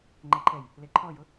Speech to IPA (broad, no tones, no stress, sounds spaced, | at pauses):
ŋ͡ǃ ɛ ǃʰ ɛ j | l e ǃʰ ɔ j ʊ